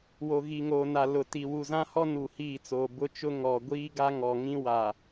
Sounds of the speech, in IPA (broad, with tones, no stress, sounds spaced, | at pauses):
w o˨ ɣ i˨ ŋ oː˨ n a˨ l ʊ˨ t i˨ w u˨ z ã˦ h ɔ˦ n u˨ h iː˦˨ t͡s oː˨ b ʊ˦ t͡ʃ ʊ˦ ŋ ɔ˨ ɡʷ iː˦ ɡ a˦ ŋ ɔ˨ ŋ ĩ˦ w a˨